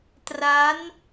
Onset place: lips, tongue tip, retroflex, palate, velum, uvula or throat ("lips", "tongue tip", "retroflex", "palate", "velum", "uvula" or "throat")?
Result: tongue tip